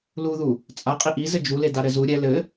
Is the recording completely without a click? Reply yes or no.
yes